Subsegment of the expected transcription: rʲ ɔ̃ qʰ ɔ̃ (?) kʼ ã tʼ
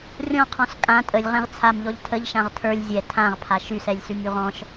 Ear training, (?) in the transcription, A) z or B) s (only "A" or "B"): B